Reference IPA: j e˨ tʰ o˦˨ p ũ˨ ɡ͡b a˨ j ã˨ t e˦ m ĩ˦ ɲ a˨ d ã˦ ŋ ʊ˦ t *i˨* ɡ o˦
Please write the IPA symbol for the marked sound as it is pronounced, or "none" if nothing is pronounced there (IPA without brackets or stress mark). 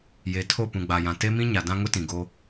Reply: ĩ˨